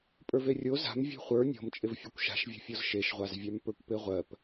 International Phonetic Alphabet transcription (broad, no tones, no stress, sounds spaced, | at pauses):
pʼ ə˞ v e rʲ o z a̤ m vʲ e̤ χʷ ə˞ nʲ ɔ̤ m t͡ʃʼ ɪ v fʲ e kʷ ʃ a̤ ʃ vʲ ɔ̤ fʲ ɔ z ʃ e ʃ ʁʷ a z vʲ a m p ə˞ kʷ p e ʁʷ ɜ p